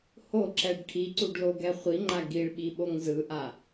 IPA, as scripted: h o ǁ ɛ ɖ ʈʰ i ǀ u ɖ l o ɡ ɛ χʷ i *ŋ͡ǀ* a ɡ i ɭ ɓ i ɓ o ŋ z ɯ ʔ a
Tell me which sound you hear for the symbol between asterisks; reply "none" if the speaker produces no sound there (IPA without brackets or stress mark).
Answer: ŋ͡ǃ